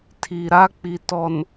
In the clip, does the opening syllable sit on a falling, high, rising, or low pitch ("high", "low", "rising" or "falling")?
low